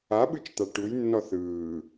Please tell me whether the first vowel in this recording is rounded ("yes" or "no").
no